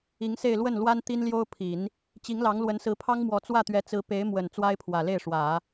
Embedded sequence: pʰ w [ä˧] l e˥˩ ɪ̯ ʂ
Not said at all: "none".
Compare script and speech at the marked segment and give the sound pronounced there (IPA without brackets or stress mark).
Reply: ä˨˩